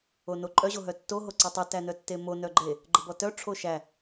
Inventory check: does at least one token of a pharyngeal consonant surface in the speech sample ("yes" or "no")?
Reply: no